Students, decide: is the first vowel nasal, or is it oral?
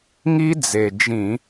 oral